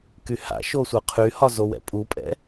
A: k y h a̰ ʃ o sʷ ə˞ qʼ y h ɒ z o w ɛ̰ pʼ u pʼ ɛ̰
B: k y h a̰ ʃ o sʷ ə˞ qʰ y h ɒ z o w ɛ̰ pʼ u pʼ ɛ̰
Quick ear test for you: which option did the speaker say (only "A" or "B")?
B